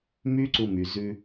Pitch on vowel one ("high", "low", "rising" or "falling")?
high